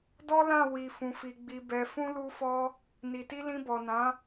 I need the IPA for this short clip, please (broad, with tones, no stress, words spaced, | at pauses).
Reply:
dɔ˦lã˦˨ wi˨ fũ˨fi˨ ɡ͡bi˨bɛ˨ fũ˧lu˧fɔ˧ | ni˨ti˧ lĩ˧bɔ˨nã˨˦